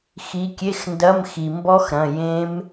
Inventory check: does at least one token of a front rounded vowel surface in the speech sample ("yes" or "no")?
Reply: no